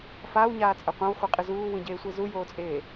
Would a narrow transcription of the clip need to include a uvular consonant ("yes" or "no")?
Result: yes